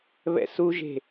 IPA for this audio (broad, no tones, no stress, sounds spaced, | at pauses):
β ɛ̰ s u ʒ e̤